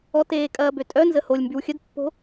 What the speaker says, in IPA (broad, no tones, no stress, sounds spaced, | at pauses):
ɔ t eː kʼ ɐː b ø tʼ œ n z ə h o lʲ m b y w xʲ ə d pː o̤